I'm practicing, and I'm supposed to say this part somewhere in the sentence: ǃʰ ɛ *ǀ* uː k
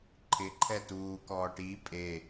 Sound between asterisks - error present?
yes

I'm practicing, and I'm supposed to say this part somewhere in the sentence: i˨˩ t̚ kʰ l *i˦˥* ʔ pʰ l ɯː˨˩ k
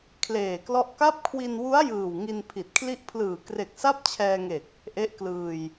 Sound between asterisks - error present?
no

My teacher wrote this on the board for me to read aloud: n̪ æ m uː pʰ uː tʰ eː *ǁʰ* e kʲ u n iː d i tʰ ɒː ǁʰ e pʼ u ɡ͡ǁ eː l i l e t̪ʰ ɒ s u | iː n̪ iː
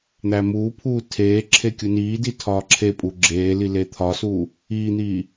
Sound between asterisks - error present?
no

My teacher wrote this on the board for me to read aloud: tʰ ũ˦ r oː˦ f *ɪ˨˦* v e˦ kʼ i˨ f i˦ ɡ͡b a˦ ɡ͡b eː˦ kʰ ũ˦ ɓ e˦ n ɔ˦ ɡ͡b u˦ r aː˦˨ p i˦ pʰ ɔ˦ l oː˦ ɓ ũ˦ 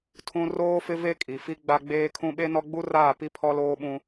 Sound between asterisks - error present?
yes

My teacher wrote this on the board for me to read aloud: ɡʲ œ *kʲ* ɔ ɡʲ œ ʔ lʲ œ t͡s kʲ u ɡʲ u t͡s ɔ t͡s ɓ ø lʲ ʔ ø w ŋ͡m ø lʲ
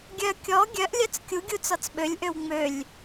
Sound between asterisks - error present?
no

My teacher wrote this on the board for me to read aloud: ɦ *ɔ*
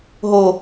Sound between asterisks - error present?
yes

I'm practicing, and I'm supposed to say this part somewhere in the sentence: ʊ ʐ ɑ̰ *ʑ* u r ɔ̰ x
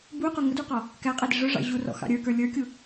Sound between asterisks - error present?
no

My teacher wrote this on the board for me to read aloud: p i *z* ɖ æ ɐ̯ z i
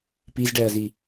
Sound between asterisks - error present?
no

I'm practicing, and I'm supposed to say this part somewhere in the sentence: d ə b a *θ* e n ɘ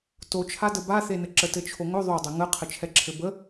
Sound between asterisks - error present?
no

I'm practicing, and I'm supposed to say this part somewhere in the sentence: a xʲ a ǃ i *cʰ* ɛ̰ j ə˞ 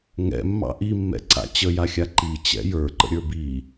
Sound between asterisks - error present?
yes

